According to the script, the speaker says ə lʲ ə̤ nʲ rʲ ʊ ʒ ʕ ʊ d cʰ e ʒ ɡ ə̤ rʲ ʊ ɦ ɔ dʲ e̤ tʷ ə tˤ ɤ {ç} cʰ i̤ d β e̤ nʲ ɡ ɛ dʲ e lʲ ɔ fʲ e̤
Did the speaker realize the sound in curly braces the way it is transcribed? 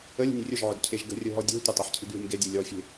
no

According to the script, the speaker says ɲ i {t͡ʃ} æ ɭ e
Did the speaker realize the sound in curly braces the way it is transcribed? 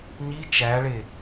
yes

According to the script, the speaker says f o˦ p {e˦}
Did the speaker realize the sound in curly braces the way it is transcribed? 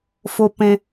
no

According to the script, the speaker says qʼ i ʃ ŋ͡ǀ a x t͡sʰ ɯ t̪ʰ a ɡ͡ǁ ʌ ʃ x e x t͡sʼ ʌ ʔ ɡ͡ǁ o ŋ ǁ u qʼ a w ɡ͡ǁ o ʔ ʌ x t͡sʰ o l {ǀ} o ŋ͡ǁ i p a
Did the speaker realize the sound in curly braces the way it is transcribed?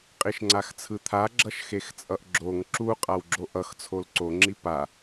yes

